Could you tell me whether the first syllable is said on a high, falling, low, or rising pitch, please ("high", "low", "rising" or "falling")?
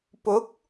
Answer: rising